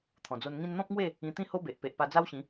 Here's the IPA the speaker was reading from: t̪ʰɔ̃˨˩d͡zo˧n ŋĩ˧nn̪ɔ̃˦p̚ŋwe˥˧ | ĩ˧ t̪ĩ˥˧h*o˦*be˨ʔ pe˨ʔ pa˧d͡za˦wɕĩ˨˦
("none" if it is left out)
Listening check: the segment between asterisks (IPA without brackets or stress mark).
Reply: o˦